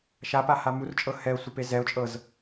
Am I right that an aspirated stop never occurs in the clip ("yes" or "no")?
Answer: yes